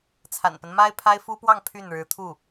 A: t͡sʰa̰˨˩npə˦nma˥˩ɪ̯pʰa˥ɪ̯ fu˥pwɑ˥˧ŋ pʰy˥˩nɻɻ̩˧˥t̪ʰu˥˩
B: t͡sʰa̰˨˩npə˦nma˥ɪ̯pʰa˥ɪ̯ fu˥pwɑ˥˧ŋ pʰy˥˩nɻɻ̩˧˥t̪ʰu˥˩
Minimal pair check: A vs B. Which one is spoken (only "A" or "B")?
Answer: B